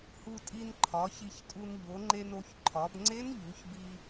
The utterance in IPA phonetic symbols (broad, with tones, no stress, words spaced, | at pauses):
hu˧tʼi˧n ǃʰɒ˩˧çi˧çtʼu˧n ʎo˩˧ŋ͡ǃe˧no˩˧ç ǃʰɒ˩˧bŋ͡ǀe˦˥nʎu˩˧ç bi˧